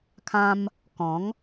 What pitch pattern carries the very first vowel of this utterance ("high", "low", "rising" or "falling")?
high